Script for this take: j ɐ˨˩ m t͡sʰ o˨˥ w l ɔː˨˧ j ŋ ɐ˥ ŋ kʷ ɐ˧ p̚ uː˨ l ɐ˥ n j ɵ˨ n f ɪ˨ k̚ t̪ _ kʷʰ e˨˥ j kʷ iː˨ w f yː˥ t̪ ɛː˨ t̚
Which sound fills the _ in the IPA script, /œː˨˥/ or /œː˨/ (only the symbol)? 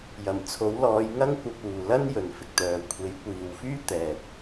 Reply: œː˨